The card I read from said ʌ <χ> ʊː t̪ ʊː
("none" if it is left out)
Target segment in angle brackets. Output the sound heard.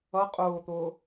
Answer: qʼ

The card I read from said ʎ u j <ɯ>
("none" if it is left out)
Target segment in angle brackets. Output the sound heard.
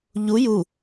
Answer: u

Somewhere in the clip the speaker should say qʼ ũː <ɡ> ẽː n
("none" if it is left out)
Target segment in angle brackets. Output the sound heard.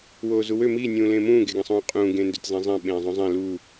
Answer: ɡ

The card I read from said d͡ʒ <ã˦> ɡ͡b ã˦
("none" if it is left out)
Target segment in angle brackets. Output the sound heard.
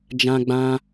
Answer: ã˦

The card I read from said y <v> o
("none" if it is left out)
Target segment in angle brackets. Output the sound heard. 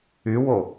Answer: w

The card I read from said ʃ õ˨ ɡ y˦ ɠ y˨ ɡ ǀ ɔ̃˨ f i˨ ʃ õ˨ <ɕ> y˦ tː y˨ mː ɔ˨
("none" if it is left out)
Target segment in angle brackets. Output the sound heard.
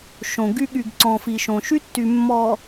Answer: ʃ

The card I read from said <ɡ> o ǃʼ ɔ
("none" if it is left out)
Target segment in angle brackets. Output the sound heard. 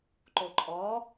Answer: ǃ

